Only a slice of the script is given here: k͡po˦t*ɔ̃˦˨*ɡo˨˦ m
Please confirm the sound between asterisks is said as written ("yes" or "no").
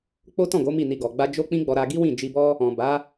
yes